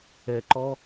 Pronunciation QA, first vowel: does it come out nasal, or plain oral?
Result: oral